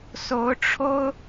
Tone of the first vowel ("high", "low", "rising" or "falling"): rising